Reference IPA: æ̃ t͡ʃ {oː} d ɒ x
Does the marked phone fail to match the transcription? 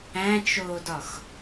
no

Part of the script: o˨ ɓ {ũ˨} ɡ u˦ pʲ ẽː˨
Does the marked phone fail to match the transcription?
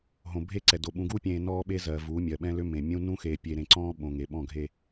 no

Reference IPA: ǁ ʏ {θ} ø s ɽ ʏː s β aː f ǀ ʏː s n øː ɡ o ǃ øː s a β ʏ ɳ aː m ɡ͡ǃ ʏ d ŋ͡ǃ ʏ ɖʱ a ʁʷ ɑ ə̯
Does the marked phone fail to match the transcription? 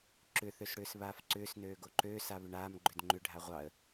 no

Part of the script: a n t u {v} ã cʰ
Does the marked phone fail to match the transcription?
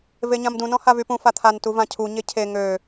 no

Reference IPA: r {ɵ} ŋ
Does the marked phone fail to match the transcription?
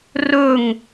no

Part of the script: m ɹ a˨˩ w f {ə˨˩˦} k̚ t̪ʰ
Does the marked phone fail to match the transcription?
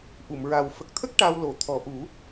yes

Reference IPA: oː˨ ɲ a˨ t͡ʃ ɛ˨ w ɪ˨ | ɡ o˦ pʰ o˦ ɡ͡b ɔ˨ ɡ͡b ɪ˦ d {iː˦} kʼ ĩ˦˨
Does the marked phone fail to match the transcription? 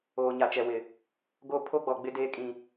yes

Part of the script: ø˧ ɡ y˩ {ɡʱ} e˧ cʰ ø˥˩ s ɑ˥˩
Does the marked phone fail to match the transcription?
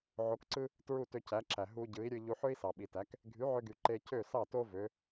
yes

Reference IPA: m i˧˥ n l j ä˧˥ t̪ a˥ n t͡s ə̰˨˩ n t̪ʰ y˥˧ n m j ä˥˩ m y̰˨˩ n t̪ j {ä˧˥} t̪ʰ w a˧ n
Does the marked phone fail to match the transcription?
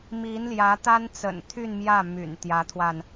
no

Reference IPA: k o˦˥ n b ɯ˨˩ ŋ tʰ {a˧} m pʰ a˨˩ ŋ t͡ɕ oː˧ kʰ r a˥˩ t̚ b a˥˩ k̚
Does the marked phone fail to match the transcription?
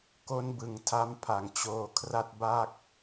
yes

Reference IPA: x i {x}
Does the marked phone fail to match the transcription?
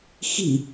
yes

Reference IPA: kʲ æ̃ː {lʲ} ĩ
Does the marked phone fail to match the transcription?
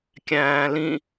yes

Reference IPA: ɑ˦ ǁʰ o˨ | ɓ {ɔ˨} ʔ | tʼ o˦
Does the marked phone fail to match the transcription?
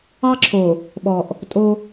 no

